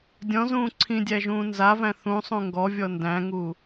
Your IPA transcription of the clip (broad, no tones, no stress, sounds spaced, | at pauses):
dʲ ɔ̃ z ũː ǀʰ ĩ dʲ æ ʒ ũː n z a v æ̃ θ ũ sˤ ũ ŋ ɡ ɔ vʲ ɔ n d æ̃ ŋ u